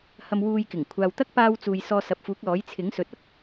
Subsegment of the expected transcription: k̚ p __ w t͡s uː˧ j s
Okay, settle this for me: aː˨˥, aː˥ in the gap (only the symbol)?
aː˥